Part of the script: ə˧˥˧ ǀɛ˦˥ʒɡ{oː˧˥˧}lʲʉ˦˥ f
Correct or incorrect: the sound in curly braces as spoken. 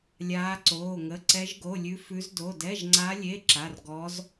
incorrect: o˧˥˧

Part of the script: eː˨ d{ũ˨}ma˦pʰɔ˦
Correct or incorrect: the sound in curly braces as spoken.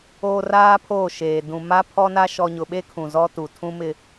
correct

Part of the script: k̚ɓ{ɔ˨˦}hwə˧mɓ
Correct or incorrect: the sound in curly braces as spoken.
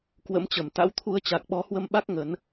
correct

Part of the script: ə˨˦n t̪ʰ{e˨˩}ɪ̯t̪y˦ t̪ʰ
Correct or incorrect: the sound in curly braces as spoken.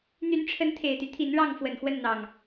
correct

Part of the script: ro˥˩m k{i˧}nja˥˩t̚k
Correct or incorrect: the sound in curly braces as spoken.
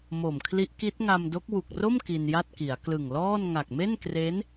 correct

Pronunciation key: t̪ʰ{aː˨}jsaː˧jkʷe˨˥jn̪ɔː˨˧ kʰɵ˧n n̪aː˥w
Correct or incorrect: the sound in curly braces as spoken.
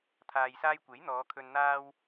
correct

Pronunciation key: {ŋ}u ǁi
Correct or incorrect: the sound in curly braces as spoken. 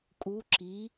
incorrect: kʼ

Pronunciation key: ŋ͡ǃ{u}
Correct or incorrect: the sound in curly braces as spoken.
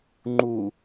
correct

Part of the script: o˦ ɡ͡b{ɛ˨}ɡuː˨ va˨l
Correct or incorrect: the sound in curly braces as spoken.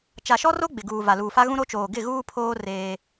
incorrect: ɪ˨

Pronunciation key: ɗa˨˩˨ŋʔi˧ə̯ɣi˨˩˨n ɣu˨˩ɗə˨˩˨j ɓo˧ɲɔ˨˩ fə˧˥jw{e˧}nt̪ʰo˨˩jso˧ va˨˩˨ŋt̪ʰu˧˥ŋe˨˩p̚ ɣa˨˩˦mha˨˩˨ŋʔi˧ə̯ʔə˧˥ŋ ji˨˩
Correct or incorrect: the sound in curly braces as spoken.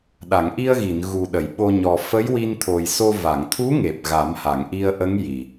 incorrect: i˧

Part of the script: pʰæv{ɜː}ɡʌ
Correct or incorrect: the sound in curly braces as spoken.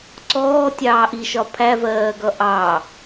correct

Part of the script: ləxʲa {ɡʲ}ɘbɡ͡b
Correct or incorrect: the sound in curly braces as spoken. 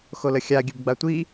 correct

